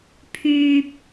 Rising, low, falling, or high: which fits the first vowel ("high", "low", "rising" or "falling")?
low